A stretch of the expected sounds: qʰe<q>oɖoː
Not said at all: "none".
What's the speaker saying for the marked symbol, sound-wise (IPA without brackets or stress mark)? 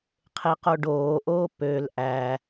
q